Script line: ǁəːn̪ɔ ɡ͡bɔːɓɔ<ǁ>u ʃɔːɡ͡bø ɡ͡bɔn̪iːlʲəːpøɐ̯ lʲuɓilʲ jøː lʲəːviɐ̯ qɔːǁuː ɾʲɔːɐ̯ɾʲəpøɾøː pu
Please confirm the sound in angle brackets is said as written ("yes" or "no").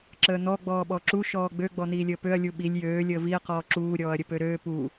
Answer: yes